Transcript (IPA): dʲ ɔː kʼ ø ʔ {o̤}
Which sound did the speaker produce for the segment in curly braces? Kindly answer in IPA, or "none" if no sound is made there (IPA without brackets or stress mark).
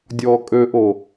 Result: o